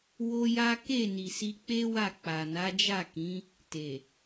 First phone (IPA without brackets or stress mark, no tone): w